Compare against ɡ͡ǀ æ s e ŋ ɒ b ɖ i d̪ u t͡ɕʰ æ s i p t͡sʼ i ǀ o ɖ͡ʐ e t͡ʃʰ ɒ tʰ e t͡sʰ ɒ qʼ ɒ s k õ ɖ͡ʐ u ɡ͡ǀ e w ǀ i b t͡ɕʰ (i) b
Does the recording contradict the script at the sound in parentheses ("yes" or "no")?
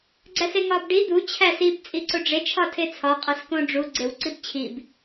no